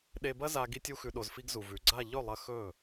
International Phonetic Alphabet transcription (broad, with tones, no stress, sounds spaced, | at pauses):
ɗ e˧ b ɐ˦ z a˧ ɡ i˦ tʲ u˦ x ʉ˧ ɗ o˧ z f i˧ ɡ z u˨ v ʉ˨ ɡ͡ǀ a˦˨ ʎ ɵ˦˨ lˠ ɐ˧ x ɵ˦˨